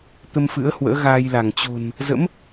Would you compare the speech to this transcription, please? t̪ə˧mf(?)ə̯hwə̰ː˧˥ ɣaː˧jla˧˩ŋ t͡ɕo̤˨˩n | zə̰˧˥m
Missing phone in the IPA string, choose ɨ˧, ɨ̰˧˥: ɨ̰˧˥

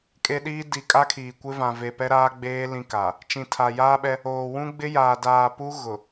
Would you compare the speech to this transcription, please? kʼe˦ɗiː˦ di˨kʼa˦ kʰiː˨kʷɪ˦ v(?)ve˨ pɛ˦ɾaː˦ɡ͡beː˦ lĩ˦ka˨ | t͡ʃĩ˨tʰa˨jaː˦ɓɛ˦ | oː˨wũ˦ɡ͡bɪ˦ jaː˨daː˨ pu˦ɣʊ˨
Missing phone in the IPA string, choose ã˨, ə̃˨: ã˨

